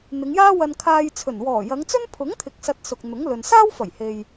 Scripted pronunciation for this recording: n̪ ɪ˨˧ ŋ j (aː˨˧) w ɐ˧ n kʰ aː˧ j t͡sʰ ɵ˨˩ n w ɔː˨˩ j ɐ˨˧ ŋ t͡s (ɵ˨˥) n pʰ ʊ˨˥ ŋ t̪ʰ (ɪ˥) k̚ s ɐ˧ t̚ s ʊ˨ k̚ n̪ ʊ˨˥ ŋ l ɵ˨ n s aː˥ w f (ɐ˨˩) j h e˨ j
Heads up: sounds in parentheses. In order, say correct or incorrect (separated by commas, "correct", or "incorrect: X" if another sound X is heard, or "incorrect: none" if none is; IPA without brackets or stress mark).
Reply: incorrect: aː˥, incorrect: ɵ˥, incorrect: ɪ˨, correct